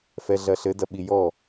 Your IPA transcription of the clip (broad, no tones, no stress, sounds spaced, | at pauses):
f ɛ ɮ ɐ ɬ ɘ d ɐ ɓ i j ɔ